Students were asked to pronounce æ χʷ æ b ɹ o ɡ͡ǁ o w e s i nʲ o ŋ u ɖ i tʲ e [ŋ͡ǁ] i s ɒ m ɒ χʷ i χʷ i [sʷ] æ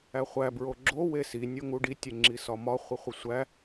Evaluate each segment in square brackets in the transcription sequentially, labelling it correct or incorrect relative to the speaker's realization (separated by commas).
correct, correct